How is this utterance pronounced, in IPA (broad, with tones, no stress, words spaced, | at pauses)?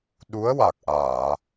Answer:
ɗu˧˥ə̯wa˨˩k̚ʔaː˨˩˨